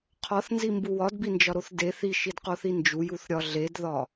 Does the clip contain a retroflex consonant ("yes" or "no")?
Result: no